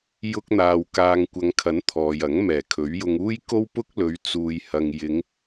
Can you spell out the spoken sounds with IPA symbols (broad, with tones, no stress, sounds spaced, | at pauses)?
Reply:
j ʊ˥ k̚ n̪ aː˧ w k aː˧ ŋ kʷ ɐ˨˧ ŋ kʰ ɐ˨˥ n t̪ʰ ɔː˨ j ɐ˨˥ ŋ m ɛː˨˩ kʰ ɵ˨˥ ɥ j ʊ˧ ŋ uː˥ j k o˥ w p ʊ˥ k̚ l ɵ˨˧ ɥ t͡s uː˧ j h ɐ˧ ŋ j ɪ˨˧ ŋ